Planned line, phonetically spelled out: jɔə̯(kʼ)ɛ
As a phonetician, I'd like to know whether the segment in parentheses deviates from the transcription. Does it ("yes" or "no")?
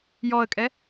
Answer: no